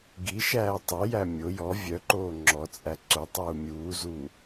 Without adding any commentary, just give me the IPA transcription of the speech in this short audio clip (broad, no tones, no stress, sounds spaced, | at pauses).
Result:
ɡ i ʃ æː tˤ œ j æ mʲ o j ɔ vʲ œ ǃ oː ŋ͡ǁ ɔ t͡sʼ æ ǀ o tˤ uː mʲ uː z u